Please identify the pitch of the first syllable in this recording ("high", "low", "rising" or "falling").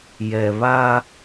low